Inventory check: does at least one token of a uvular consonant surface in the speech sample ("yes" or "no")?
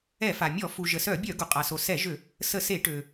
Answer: yes